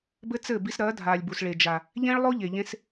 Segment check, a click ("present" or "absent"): absent